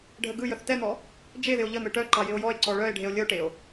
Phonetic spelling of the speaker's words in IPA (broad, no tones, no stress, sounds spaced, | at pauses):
ɖʱ ə ɡ ɯ j ə θ t ɛ n̪ ɔ | d͡ʒ e ð ɪ o̯ ʎ ə n̪ ɯ ʈ œ ǃ ɑ j ɪ o̯ j ɔ e̯ ǀ ɔ ɭ œ e̯ ɖʱ e o̯ lʲ ə o̯ ʈ e o̯